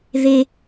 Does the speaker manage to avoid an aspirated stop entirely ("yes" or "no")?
yes